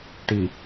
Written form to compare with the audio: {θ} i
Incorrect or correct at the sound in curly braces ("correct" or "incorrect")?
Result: incorrect